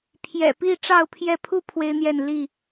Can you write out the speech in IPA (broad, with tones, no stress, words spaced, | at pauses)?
pʰjɛ̰˨˩pi˥˨ ʈ͡ʂɑ˥˨ʊ̯pʰjɛ˥˨ pʰu˥˨ pʰwe˦ɪ̯n̪jɛ˥˨n li˥˨